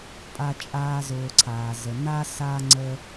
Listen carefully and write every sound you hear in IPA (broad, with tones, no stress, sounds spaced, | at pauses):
pʼ a˦ t͡ʃʼ aː˦ z ʊː˨ ǀʰ aː˩ z ə˩ n a˥ s a˥ ŋ͡ǀ ə˦